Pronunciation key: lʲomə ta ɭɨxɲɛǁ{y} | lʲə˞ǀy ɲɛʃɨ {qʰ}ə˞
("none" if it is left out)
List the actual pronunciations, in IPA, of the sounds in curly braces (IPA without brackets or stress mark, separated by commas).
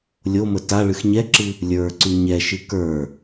ɨ, k